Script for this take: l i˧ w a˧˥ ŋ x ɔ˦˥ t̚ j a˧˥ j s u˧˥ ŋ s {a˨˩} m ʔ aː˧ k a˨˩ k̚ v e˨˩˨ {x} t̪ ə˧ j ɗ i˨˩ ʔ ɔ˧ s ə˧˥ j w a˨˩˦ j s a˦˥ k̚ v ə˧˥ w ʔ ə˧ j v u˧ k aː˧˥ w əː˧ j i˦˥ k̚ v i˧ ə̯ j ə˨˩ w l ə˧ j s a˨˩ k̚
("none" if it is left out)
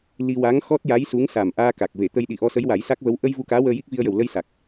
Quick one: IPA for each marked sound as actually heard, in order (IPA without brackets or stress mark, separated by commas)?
a˨˩, none